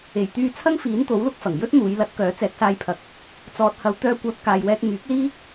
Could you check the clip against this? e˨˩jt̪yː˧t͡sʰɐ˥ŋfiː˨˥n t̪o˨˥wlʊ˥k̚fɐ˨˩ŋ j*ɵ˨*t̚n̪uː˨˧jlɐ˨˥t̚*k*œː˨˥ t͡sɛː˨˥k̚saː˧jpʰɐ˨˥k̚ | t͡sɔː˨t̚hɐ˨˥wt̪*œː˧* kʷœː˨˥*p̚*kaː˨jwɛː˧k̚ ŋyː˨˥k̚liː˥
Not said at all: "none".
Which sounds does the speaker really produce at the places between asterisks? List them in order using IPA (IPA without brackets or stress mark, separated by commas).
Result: ɵ˥, k, œː˧, p̚